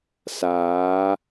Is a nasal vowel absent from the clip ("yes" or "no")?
yes